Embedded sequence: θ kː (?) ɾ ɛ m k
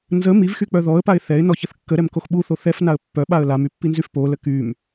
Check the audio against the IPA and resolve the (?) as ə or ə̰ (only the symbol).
ə